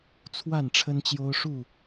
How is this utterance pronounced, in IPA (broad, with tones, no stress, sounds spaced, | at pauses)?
t͡sʰ w a˥˨ n ʈ͡ʂʰ ə˦ n t͡ɕ j o˦ ʊ̯ ʂ u˥˨